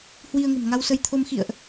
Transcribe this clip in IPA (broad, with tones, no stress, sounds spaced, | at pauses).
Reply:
h w i˧ ə̯ ŋ ə̤˨˩ m ŋ a˧ w s ə˧ j t̪ʰ o˧ m x ḭ˧˨ ə̯ ʔ